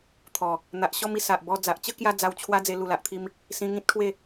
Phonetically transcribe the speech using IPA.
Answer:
t̪ʰ ɔ˨˩ | n̪ a˨ ʔ ɕ ɔ˥˧ m i˧ s a˨ ʔ b ɔ˧ d͡z a˨ ʔ t͡ɕ ə˦ k j a˧ d͡z a˧ w t͡ɕʰ w a˦ d͡z e˧ l u˨˩ l a˨ ʔ t̪ʰ i˧ m | s ĩ˧ ŋ ĩ˦ t̚ kʰ w e˥˧

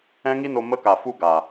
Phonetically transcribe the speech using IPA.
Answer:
ɛ̃˦ ŋ i˦ n o˧ m ə˦ k a˨ f u˦ ɡ a˨

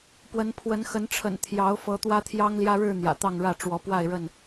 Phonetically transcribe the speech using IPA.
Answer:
p w ə˨˦ n pʰ w ə˨˦ n x ə˨˦ n ʈ͡ʂʰ ə̰˨˩ n t̪ʰ j ɑ˨˦ ʊ̯ f ɤ˨˦ t̪ w ä˦ t̪ʰ j ɑ˦ ŋ l j ä˦ ɻ ɻ̩˥˨ n̪ j ä̰˨˩ t̪ ɑ˥˨ ŋ ɻ ä˥˨ ʈ͡ʂ w ɔ˨˦ p w a˥˨ ɪ̯ ɻ ə˥˨ n

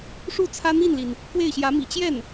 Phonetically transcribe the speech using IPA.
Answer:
ʂ u˥˩ t͡sʰ ä˥ n̪ i˥˩ n l i˩ n | k w e˥˩ ɪ̯ ɕ j ä˧˥ m ḭ˨˩ t͡ɕ j ɛ˥˩ n

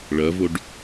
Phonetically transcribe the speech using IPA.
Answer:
ɭ ɐ v o ɖ

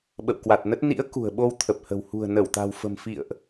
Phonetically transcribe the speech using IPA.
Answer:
ɓ ə̰˧˨ w k w a˨˩ t̚ n ə˦˥ t̚ n ḭ˧˥ ə̯ k ṳ˨˩ ə̯ ɓ o˧ w t̪ʰ ə˨˩ p̚ h ə̤˨˩ w h ṳ˨˩ ə̯ n ə˧˩ w t̪ a̤˨˩ w f ə̤˨˩ m f ḭ˧˨ ə̯ ʔ

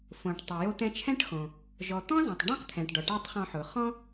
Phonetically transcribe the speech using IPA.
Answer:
f õ˩ ʈ tˤ ʊ˩ j o˧ t̪ ɛ̃˧ t͡ʃʰ ɛ̃˥ ʈ x õ˩ | ʒ ɔ˩ t̪ ɔ̃˥ z ã˩ tˤ ɖ ã˥ q t̪ʰ ɛ̃˩ ʈ ɖ ɔ˩ ʈ a˥ tˤ χ ɔ̃˧ ħ ʊ˩ χ ɔ̃˥

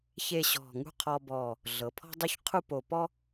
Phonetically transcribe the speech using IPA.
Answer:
ç e˥˧ ɕ ɔ̤˧˩ ŋ ṳ˥˧ qʰ ɔ˧ b ɔ˧˩ | ɮ ɤ˩˧ pʰ ɔ̤˥ dˤ u˥˧ ç qʰ u˥˧ p o˧˩ p ɔ˥

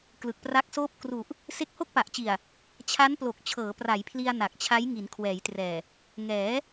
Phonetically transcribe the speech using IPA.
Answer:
k l ɯ˨˩ k̚ p r a˦˥ k̚ s oː˥˩ p̚ k r u˨˩ ʔ | s e˦˥ k̚ h o˥˩ k̚ p a˨˩ ʔ t͡ɕ i˨˩ a̯ | t͡ɕʰ a˦˥ n p l o˨˩ k̚ t͡ɕʰ ɤː˩˦ p r a˩˦ j pʰ l i˧ a̯ n a˨˩ k̚ t͡ɕʰ a˦˥ j ŋ i˩˦ n kʰ w ɛː˩˦ j t r ɛː˨˩ | ŋ ɛː˩˦

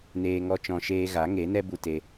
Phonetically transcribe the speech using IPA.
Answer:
n eː˧ ŋ ɔ˦ t͡ʃ ɔ̃˧ ʃ eː˧ ɣ a˨˦ ŋ e˨˦ n ɛ˦ b u˧ t e˧

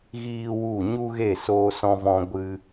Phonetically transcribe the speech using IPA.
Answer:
ɣ iː˦ w u˦˨ ɲ u˦ ɣ e˦˨ s oː˧ s ɔ̃˧ v ɔ̃˧ ɡʷ ɨ˧

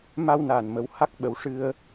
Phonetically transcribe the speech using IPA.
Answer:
m a˧ w n aː˨˩ n m ə˧˥ w h a˦˥ k̚ ɓ ə˨˩˦ w ʂ ɨ˧ ə̯

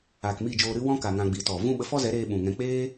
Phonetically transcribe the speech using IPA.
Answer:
aː˨ k m i˦˨ d͡ʒ oː˧ ɾ ɨ˧ w ɔ̃˧ k a˨ ŋ ã˧ ɡ͡b iː˨ t ɔ˨ v ũ˦ ɓ ə˧ f ɔ˦ z ɛ˨˦ ɾ eː˧ ɓ ũ˨ ŋ ɛ̃˧ k͡p eː˦

